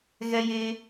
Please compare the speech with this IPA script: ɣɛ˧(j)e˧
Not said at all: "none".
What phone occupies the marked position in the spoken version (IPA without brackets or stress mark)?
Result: j